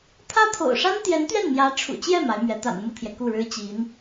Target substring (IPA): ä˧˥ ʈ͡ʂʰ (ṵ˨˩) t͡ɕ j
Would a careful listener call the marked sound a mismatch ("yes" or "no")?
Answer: no